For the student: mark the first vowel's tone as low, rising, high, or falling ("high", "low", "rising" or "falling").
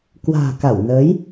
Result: low